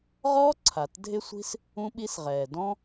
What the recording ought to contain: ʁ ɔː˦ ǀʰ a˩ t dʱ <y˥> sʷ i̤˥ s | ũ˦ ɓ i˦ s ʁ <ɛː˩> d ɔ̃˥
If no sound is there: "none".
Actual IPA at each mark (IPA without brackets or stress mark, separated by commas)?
ɪ˥, ɛː˩